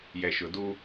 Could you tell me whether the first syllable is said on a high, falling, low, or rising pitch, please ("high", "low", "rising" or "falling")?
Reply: low